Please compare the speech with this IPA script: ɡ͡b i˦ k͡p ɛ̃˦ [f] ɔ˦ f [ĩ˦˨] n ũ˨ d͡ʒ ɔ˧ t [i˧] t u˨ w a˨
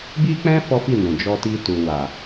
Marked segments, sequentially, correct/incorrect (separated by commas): correct, incorrect, correct